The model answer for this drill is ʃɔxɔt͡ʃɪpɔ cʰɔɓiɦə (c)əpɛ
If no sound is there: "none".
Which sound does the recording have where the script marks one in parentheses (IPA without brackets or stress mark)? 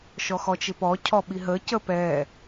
c